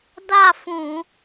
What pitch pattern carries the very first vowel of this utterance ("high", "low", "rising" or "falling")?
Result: falling